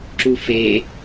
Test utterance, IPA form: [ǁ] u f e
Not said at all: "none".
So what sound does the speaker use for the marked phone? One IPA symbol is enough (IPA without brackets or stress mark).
ǁ